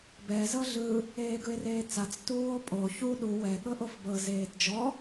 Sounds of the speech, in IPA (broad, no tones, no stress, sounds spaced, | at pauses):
b ɛ z ɤ ɮ ɯ | eː ɡ ɯ e̯ r eː t͡s a t͡s t uː o̯ pʼ o ç u ɗ u w ɛ ɠ ɤ ʔ o f b ɤ z eː t d͡ʒ ɔ